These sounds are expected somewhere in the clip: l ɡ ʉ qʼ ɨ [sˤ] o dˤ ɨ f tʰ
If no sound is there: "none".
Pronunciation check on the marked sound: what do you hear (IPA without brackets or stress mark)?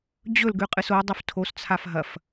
s